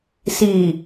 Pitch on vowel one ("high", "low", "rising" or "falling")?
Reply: low